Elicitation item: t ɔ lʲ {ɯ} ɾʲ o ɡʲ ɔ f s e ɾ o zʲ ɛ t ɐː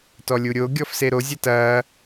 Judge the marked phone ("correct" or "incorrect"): incorrect